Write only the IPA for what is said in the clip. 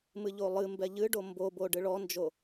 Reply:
mɨʎolˠɨmbɛ ʎɨɖo mbobo ɖɨɭɔnd͡ʒo

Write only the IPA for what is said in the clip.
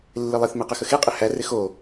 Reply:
lːɪlˠɪθ meqəxəxe qʼɪhæ rɪxo

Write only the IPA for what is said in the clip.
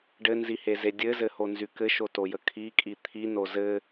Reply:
ɖɘnziheze dʲɘzɘhonzy kɘʃotojə kʰikʼi t̪ʰino zɘ

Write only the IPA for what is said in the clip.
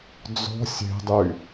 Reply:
d͡zɔ̤ sʲe̤dˤy

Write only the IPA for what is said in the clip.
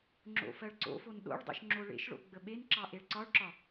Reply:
ŋ͡ǁo̰fɜɭǀo̰fon ɗo̰ɭ dˤo̰ʃŋ͡ǁoɭḛʃɭo̰ ɡ͡bəɓenǁɑ ʔeɭǀɒɭǁɒ

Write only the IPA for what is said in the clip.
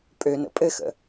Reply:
pʼønə̰ pʼɘxə̰

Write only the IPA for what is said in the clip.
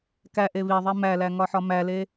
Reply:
kæʔe βiðˤi mælæ ŋɒħɒmæle

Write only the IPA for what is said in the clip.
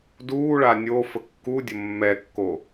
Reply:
duːɭa nʲofə kːudʲə mːɛkːo

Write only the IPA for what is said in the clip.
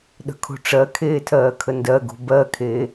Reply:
ɗə̤kʰo̤ʈ͡ʂɜkʰeː tʰɜːkʰəndɜɡo̤ bɜkʰeː

